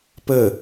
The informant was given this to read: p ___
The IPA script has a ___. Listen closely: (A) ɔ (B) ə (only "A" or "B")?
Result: B